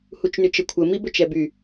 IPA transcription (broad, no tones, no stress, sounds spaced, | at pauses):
h u t͡ʃ n y t͡ʃ ə kʷʰ ə m i b ɵ t͡ʃ ɛ b y